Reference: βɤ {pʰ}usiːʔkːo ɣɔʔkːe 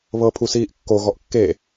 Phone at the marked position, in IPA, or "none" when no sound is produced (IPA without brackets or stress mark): pʰ